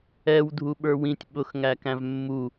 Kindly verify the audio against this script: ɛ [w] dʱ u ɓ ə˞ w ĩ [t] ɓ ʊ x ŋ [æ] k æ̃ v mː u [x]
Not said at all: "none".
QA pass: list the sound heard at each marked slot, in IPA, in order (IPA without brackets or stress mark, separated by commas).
w, tʲ, æ, none